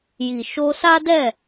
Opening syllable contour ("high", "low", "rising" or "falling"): low